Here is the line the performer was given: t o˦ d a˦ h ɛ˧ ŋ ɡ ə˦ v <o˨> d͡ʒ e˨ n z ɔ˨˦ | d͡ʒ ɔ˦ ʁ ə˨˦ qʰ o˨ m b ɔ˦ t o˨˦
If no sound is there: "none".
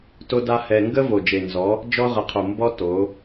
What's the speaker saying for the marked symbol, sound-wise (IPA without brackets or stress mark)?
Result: o˨